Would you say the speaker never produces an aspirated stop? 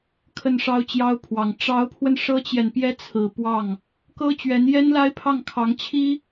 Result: no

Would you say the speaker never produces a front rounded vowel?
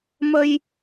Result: yes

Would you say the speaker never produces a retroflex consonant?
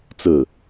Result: yes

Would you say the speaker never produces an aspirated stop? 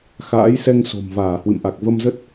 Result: yes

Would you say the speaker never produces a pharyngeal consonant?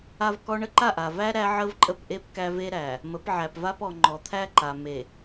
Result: no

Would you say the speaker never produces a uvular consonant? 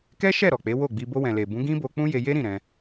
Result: yes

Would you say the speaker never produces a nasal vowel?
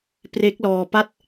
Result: yes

